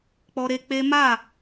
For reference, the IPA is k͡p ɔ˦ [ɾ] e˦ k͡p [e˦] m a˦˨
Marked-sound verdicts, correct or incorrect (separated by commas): correct, correct